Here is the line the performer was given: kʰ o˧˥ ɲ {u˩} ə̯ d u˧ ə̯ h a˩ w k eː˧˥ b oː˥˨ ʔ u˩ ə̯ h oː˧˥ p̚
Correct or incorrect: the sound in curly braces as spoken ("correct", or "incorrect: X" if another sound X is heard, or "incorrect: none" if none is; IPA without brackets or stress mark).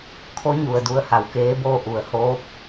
correct